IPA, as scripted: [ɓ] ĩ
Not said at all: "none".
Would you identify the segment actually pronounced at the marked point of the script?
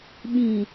ɓ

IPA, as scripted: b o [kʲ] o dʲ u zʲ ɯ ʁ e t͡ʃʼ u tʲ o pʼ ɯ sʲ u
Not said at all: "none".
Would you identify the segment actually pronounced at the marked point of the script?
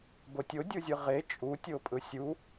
tʲ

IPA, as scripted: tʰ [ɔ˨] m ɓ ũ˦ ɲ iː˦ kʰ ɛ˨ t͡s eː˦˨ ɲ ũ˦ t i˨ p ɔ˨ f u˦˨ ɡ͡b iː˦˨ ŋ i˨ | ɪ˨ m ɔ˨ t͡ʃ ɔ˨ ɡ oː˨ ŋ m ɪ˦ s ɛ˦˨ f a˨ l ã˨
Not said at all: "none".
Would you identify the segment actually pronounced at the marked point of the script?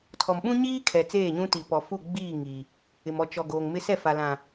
ɔ˨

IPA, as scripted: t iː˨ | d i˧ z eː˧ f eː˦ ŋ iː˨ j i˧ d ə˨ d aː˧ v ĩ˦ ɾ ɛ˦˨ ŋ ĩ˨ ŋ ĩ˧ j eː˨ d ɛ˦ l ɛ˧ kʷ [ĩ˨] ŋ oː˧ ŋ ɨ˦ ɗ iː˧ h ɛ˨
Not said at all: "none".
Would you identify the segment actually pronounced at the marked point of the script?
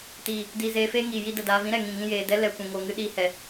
ĩ˨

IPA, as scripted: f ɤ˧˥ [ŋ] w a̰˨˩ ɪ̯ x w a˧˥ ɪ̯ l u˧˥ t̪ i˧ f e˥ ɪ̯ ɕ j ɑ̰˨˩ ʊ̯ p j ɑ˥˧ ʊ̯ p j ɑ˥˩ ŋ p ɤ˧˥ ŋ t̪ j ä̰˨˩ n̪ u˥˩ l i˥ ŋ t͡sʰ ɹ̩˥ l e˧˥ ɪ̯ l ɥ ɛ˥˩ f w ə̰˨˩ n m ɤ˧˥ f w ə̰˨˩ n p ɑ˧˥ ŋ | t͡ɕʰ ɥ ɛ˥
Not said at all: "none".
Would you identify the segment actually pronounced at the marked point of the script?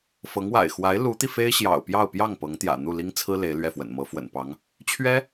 ŋ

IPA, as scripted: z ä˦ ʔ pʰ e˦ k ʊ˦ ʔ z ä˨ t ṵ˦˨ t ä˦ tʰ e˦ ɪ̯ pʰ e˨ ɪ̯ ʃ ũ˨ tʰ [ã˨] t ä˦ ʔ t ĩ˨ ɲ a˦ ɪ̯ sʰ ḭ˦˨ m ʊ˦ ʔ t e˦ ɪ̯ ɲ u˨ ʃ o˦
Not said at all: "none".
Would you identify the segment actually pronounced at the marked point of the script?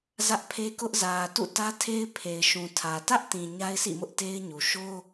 ä˨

